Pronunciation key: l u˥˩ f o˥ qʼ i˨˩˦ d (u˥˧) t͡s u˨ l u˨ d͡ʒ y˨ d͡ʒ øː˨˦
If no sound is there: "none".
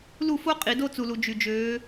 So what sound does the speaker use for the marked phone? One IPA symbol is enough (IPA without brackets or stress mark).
o˥˧